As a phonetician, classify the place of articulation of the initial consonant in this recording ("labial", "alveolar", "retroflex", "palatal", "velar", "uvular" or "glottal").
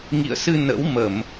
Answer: velar